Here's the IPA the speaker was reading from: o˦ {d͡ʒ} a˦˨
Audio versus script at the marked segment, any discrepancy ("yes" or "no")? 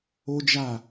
no